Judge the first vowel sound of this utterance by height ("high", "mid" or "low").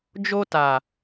mid